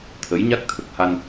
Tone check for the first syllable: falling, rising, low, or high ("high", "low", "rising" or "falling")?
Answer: rising